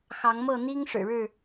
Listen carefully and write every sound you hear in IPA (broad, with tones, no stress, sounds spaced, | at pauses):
x ɑ˨˦ ŋ m ɤ˥˨ n̪ i˦ ŋ ʂ ɻ̩˨˩ ɻ ɻ̩˥˨